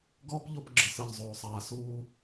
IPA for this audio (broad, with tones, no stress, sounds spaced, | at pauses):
ɡ ɔː˦ p ʎ o˧ p ɡ͡ǁ ɯ˨ s ɯ˨ ʎ zˤ oː˨ sˤ aː˨ s uː˧